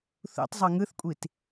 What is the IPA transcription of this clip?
θṵtˤ zˤɤŋɯθkʷʼit

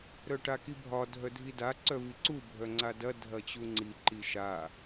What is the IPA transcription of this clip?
ɾœʈakibʱɒ dʱœdʱida ǀœviǀu bʱœŋ͡ǀadɐ dʱɐt͡ɕuŋ͡ǀi ǃiʃa

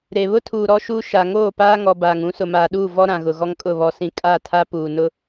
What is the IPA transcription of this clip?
ɾe˨ βʊ˦tʰuː˨ ɾɔ˦ʃuː˦ ʃa˨ ŋoː˦˨paː˦ŋɔ˨ baː˨ŋũ˨˦ sʊ˨maː˨ɗuː˦˨ vɔ˦ɾã˨ɣʊ˨ ɣɔ˦ŋkʼʊ˦˨ βɔ˨sĩ˨ kʼa˦˨tʰa˦ puː˨nʊ˦

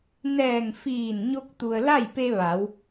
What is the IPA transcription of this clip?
nɛː˧˩ŋ fiː˧˩nɲo˧k̚ t̪u˩ə̯ la˥˨jpe˧ ʋa˩˧w

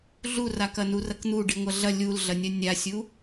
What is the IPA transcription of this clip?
ɮurakɐ nurɐkn̪u ɖiŋʷɐɮɐ lʲulɮɐnʲɐ nʲasʲu

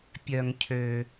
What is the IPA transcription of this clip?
pʲœ˩ŋ cʰø˩

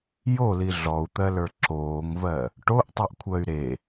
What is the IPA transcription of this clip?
joli ɮɔu̯t̪ɜlə˞ ǁoːŋvɜ | ʈoʔtˤiʔkʷʰɜy̯ ɾe

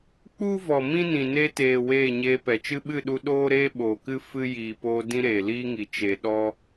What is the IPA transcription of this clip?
k͡pu˦vɔ˨ mĩ˦nĩ˨ ne˧teː˨ weː˦˨ɲeː˧pɛ˨ t͡ʃɨ˧ɓɨ˦˨ɗu˧ ɗoː˦ɾeː˦ ɓoː˨kɨ˦ fɨ˧ jiː˨poː˧ dĩ˦ɾeː˨liː˦ŋi˨ t͡ʃe˨ɗɔ˦

